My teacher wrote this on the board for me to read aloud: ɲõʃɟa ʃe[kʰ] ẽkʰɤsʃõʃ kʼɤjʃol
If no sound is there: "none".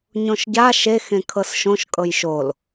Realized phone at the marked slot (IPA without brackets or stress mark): x